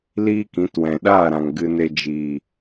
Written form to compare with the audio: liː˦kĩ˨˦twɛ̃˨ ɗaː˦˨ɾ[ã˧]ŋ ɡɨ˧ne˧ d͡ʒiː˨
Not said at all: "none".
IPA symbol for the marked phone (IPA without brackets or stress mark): ã˨